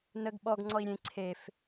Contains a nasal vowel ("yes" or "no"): yes